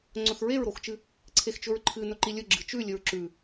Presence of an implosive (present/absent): absent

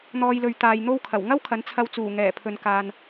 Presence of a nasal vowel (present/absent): absent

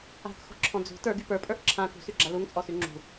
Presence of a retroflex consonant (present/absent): absent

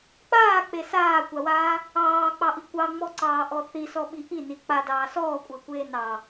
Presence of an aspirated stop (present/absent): absent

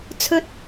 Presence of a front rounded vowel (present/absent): absent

